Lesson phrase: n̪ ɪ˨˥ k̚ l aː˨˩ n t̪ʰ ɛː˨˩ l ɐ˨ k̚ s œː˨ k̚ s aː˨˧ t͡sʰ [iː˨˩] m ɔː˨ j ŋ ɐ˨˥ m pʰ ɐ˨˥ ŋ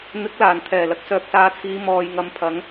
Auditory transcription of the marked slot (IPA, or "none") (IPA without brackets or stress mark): iː˨˧